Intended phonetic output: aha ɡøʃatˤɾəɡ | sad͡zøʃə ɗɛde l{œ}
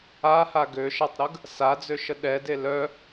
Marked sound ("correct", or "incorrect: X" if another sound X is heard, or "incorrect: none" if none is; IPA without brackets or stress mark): correct